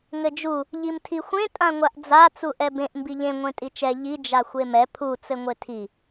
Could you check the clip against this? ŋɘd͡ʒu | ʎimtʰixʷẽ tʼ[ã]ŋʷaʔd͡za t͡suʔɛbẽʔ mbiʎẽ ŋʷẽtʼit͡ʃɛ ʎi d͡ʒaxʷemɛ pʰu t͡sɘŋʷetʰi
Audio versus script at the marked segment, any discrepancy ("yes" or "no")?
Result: no